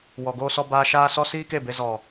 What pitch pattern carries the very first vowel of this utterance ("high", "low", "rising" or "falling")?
low